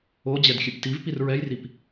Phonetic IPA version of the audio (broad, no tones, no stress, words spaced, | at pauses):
o d͡ʑɛdxʲɨptivpir ɹɛjrip